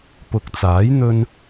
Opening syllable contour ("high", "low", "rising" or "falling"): low